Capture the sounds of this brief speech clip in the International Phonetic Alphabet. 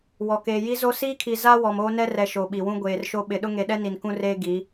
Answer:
wɔ˨keː˨ ji˦zo˦ siː˦kʰi˨ za˦ wɔ˨moː˦nɛ˦rɛ˨ ʃo˨ɓi˨wũ˦ ɡʷeː˨rʃo˦ ɓɪ˨ ɗʊ˦ŋe˨ɗɛ˦ ni˨nkũ˦reː˦ ɡi˨˦

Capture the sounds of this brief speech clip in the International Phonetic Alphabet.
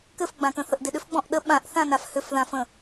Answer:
kɘfɡ͡bãkə̃θəʔ dɪɗʏfɡ͡bɔ̃ʔ ɗə ɓãʔθãnaf hʏfðãfə̃

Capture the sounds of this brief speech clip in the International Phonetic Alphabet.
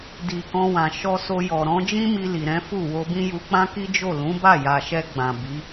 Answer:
di˨ kɔ̃˧wã˨ʃɔ˧ so˧jɔ˨ ɾɔ̃˨˦d͡ʒĩ˦mi˧ li˨ɾɛ̃˨˦fu˦˨ wo˧bĩ˦ju˧ k͡pã˦ki˦d͡ʒo˦˨ lũ˨˦ba˦˨ja˨ʃɛ˧ ɡ͡bã˨ bi˨˦

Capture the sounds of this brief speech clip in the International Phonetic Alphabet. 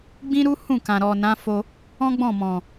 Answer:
ɡ͡bĩ˦ɾu˦ hũ˦˨kã˨ ɾɔ˨nã˨˦fo˧ | ɔ̃˦ɡ͡bɔ̃˦˨mɔ̃˨

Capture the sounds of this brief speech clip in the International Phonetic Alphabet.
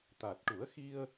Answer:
t̪a˨˩t̚ʈu˨˩˦ə̯xi˧ə̯

